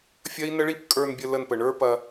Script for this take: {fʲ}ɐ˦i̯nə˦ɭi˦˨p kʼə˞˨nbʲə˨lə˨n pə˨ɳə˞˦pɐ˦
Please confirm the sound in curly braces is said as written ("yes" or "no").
yes